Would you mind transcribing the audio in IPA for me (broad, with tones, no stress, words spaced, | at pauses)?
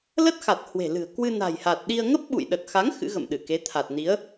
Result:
lə˦˥t̚xa˨˩t̚ hwe̤˨˩lɨ̤˨˩ə̯ kwɨ˧na̤˨˩jha˨˩t̚ɗi˧ə̯ ŋə˦˥p̚ɓṵ˧˨jɗə˨˩t̚xa˨˦ŋ xɨ̰˧˥ɣə̰˧˨m ɗɨ˧˩ke˨˦ t̪ʰa˨˩t̚ni˨˦ə̯